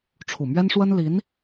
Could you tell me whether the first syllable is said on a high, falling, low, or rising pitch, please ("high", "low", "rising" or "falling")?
low